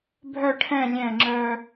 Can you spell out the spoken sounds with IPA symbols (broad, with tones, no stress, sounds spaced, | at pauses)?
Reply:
bʱ œ˥˧ ʈʰ ɛ̃˥˧ lʲ ɛ̃˧˩ ŋ͡ǁ œ˧